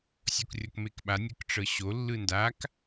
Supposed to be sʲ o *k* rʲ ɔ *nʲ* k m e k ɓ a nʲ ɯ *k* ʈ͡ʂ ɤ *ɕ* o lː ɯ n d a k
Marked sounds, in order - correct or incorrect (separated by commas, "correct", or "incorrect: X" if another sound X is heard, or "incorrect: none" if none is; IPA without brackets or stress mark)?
correct, incorrect: none, correct, correct